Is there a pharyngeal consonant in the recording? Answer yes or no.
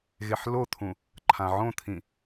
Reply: yes